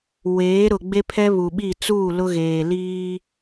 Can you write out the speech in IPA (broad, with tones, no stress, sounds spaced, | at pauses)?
w eː˨˦ ɾ ʊ˨ ɡ͡b e˦ pʰ ɛ˦ β u˨ ɓ i˦˨ t͡s uː˦˨ l ʊ˦ ɣ eː˨ l iː˦